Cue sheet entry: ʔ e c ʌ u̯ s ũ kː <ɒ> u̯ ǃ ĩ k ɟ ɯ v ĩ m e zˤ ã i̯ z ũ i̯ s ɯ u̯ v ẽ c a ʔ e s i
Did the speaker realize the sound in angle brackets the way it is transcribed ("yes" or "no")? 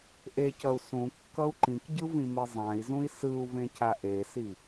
no